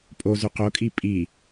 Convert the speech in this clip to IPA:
pʼ o z ʉ q o kʼ i pʼ i

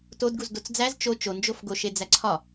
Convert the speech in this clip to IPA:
t o d ɡ u z d o t͡s d͡z æ z t͡ʃ o t͡ʃ o n d͡ʒ o f ɡ o ʃ e d͡z æ ǀʰ ɒ

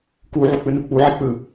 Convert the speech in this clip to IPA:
k u ʕ u k͡p ɯ n u k͡p u ʕ i k͡p ɯ

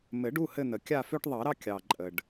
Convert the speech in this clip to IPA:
m ɘ˨˩˦ ɖ u˩˧˩ h ɘ˦˨ n̪ ə˩ kʲ a˦˨ f ø˦ ʈ ðˤ ɑ˨˩˦ ɾ ɑ˦ kʲ ɑ˩ ǃʼ ə˩ ɖ

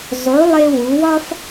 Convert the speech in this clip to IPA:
zˤ u˩˧ lˠ e˧ w u˩˧ w ɒ˥ f

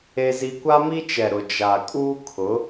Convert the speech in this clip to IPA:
e˦ z i˦ kʷ a˦ m i˦ t͡ʃ ɛ˨ ɾ ʊ˨ d͡ʒ a˨ kʼ uː˦ kʰ ʊ˨˦

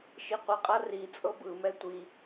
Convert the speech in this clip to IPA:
ʃ i qʷ i qʼ a r i t͡sʼ ɤ b ɯ m ɛ tʷ i

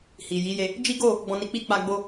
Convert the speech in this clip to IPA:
h i˨ j i˨˦ j e˧ | d͡ʒ i˦ ɡ o˦˨ | ɡ͡b ɔ̃˧ n i˧ k͡p i˦ k͡p a˧ ɡ͡b o˧

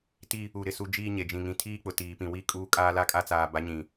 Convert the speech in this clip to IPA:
t i˦ | u˨ ɾ ɪ˨ s u˦ d͡ʒ iː˦ ɲ e˨ d͡ʒ ĩ˨ ŋ ĩ˨ tʰ iː˦ k͡p ʊ˨ t iː˨ p ĩ˨ w i˦ kʼ uː˦ kʼ aː˦ l a˦ kʼ a˦ t͡s aː˨ b a˨˦ ɲ ĩ˨

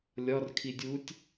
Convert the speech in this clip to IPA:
lʲ ɒ r kʰ i dʲ u tʲ

